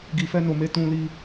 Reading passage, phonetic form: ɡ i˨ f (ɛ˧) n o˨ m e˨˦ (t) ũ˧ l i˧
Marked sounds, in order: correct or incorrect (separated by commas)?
correct, correct